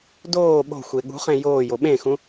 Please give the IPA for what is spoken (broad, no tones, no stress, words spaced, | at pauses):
doː ɓo̤xʷe ɠṳχẽ joːjo ɓẽxũ